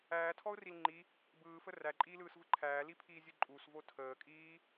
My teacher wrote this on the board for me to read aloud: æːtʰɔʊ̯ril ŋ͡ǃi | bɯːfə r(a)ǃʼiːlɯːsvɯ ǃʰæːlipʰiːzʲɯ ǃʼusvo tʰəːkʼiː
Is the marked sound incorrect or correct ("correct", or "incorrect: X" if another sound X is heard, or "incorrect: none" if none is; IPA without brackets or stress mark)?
incorrect: æ